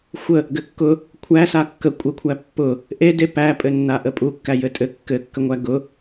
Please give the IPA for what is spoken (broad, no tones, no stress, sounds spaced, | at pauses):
xʷ ə | ɡ ɘ kː ʊ | kʷʰ æ s a kː ə kʷʼ ə kʷʰ æ pː ʊ | ʔ e d e p æ pʼ ɘ nː a ʔ ə pʼ u kː æ j ɘ tʼ ɘ kː ɘ kː ə ŋʷ æ ɡ ʊ